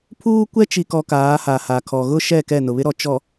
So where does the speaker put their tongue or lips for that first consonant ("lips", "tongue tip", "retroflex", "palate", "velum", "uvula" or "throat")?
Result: lips